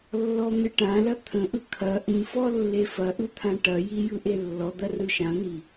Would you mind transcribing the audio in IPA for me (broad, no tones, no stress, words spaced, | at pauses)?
lːɔn̪ɨʈãlɐ t̪ʰə̃ʔɯ kʰɐ ʔĩfɔ lːefɐʔɯ t̪ʰãʈɐji jɯʔelːɔd̪ɐ rɯʃãn̪i